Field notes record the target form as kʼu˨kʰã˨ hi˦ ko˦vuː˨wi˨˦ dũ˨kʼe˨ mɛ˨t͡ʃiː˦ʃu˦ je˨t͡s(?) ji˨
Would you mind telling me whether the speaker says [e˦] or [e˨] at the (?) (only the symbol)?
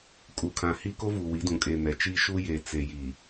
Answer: e˨